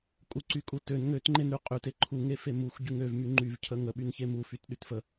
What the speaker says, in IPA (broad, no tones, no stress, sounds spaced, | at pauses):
kʼ u ǀ y kʼ u t ø n ŋ ø t ŋ͡ǃ e n ɾ y qʼ y t e ǃʰ u ŋ e f e m u xʷ ɟ y ŋ ø v m y ŋ͡ǃ y v cʰ ə ŋ ə ɓ y n ç e m u f y t ɗ y t f ə